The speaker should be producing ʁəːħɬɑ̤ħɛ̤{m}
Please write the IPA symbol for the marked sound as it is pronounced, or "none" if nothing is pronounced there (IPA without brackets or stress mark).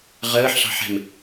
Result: m